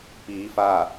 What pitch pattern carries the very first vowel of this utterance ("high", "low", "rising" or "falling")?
rising